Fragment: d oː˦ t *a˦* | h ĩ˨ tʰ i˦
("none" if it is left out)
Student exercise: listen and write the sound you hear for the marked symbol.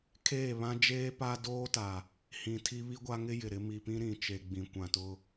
a˨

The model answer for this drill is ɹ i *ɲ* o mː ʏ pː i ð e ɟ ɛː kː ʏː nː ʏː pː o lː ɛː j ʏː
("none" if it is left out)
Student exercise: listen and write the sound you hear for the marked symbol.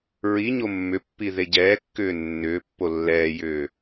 ɲ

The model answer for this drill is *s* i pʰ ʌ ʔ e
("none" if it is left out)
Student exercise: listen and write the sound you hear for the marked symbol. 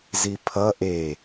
z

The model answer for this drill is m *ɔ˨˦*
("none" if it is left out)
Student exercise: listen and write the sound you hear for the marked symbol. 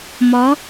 ɔ˨˦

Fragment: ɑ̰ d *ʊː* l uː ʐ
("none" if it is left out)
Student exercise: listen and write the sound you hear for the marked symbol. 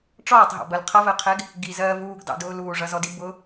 ʊː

